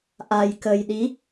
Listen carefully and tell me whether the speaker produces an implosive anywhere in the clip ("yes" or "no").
yes